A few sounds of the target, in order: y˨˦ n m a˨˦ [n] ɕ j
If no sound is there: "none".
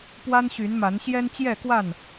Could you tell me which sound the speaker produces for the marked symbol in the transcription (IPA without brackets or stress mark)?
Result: n